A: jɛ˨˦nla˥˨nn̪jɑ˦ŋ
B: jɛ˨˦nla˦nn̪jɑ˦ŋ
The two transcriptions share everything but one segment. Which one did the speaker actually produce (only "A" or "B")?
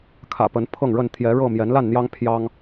A